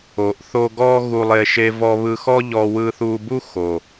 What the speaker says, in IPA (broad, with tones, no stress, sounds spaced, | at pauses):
o˨ ʔ θ o˧ ɡ ɔ˦ ɣ u˧ lˠ e˧ ʃ e˧ v ɔ˧ β ɯ˧ x ɔ˦ ʎ ɔ˧ w ɯ˧ θ u˧ b u˦ x o˨